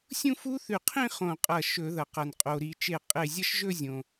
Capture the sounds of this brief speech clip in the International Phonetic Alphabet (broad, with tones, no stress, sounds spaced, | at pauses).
sʲ ũ˥˧ f u˦˥ θ ʉ˧˩ qʰ ĩ˥˧ χ õ˧˩ qʼ ɐ˧˩ ʃ ɵ˧˩˧ ð ɐ˩ q ɐ˩ n qʼ o˩ ɾ i˧˩˧ t͡ʃ e˧˩ qʼ e˧˩ zʲ ɐ˥˧ ʃ ʒ ɵ˥˧ zʲ õ˩